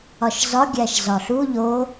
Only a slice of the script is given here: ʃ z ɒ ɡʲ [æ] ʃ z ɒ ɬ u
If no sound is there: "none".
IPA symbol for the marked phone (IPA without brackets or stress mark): æ